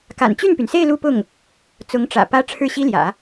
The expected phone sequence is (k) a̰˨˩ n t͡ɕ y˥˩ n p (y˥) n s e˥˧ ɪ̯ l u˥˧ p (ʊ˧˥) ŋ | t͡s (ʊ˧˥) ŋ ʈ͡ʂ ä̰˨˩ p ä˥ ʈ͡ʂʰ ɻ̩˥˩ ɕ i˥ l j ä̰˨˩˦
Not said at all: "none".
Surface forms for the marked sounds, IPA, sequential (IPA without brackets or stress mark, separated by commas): k, y˩, ʊ˥˩, ʊ˧˥